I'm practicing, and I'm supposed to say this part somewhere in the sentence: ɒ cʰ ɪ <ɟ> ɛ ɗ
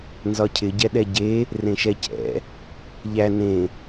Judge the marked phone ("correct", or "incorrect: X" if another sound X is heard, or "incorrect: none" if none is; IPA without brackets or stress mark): correct